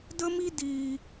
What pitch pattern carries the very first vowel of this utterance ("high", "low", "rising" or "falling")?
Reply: high